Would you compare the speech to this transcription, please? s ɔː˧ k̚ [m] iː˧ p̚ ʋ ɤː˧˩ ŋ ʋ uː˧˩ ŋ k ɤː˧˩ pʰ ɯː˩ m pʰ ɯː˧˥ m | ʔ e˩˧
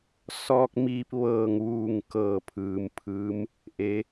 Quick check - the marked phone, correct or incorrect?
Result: correct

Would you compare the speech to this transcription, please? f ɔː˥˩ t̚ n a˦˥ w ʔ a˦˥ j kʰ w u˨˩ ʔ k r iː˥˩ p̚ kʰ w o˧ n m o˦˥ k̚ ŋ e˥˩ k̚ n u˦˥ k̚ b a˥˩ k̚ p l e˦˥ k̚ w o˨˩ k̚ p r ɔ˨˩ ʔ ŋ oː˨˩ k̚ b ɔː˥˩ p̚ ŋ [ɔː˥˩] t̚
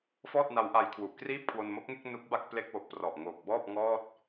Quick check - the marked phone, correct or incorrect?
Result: correct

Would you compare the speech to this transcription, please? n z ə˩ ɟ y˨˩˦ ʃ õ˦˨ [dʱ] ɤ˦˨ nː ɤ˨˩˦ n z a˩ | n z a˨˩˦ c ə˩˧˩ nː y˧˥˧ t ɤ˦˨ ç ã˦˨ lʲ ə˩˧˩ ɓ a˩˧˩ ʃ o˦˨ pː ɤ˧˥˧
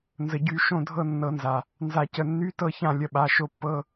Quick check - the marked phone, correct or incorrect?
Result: correct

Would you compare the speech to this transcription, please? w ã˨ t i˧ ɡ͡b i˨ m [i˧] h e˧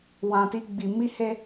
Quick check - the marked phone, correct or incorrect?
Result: correct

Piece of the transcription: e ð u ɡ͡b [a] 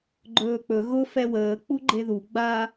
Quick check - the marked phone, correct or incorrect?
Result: correct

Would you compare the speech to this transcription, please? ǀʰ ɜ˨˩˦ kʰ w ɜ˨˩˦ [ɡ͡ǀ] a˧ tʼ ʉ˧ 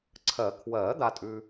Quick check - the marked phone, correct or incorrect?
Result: incorrect: d̪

